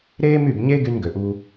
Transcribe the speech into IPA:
ɾ eː˦ m y˦˨ b ɲ eː˦ ɡ y˧ n ɡ ø˨ ʔ uː˧

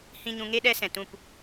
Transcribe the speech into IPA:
h ĩ˦ ɲ ũ˧ ŋ e˦ ɗ ɛ˧ s ɛ̃˨ t ũ˦˨ p

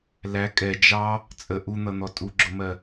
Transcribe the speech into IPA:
l æ kʼ ɛ d͡ʒ ɑ | t͡sʼ ə ʔ u n̪ ʌ n̪ ɔ tʼ u ɡ͡ǁ ʊ m ɜ

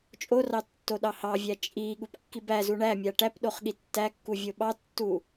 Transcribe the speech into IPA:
t͡ʃʼ o r ɑ tː o ɗ ɑ h ɑ vʲ æ t͡ʃʼ i ɠ u p kː i b æ z u ɳ æ mʲ a ʈ æ p ɗ o χ ɠ i tː æ kː u vʲ o ɓ ɑ tː u

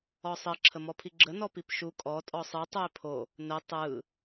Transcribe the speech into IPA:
ɔ sˤ ə ǁʰ ə m ɔ pʰ i ɡ͡ǁ ə n ɔ p i p ʃ u kʼ ɔ tʼ ɔ sˤ ɯ tˤ u ɪ̯ pʰ o | n ə tˤ ɯ

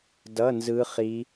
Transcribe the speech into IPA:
d ʌ˧˥˧ n z ɯ˦˥ χ i˦˥

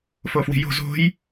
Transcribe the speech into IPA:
f o f w i̤ j o̤ z o̤ j

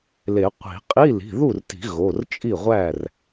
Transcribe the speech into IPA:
l e˨˩˦ qʷ i̤˨˩˦ qʼ i˧˥˧ l i̤˩˧˩ ð u˥˩ r t i̤˨˩˦ ɣ o˩˧˩ r t͡ʃʼ i˥˩ ʁʷ æ˥˩ r

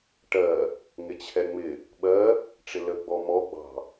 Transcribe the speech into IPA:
ʈ ɜ | ŋ ɪ t͡ɕʰ ɛ ŋ͡m ɪ | ɓ ɜ | ʈ͡ʂ ɪ l ə ɡ͡b ɔ m ɔ ɡ͡b ɑ̤

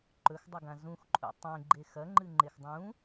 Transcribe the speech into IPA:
ǃ ɵ x dˤ ɵ ɡ ã z ũ x ǃʼ ṵ tˤ ẽ ɡ͡ǃ e x ɐ ŋ͡ǃ ɨ ŋ͡ǃ e x dˤ ũ

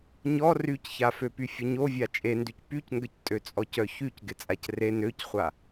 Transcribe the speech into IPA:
ɲ ɔ r y c ç a f ø p y fʲ ə ɲ o vʲ a t͡ʃʼ e n d y c p y c ŋ ɡ ə c tʼ ø t͡sʼ ɔ c œ ç y c ɡ ɪ t͡sʼ a c r e n ø c χʷ a

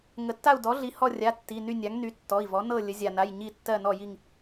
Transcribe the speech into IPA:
ŋ ə˩ tː a˦˨ u̯ d ɔ˩˥ ɮ i˩˧˩ h ɔ˦˨ rʲ a˩˧˩ tː i˩˧˩ n y˦˨ nʲ a˩˥ ŋ n y˩˥ tː ɔ˩˧˩ i̯ v ɔ˩˥ n ɤ˦˨ lʲ ə˩˧ zʲ a˩ n a˩˧˩ j ɲ i˦˨ tː ɜ˦˨ n ɔ˦˨ j i˦˨ ŋ

